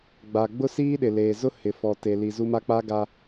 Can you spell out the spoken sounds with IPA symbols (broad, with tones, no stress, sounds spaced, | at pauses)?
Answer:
ɡ͡b a˨ ɡ͡b ʊ˦ s iː˦ ɗ ɪ˨ l eː˨ z ʊ˦ h ɪ˨ f ɔ˨ t e˨ l i˨ z u˦ m a˦ k͡p a˦ ɡ a˦